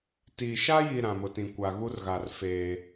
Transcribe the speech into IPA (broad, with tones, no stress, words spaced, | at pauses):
tiː˨ ʃa˦ji˨ ɾã˨mʊ˨tĩ˨ kʷa˨ɣu˦rɣa˨r feː˦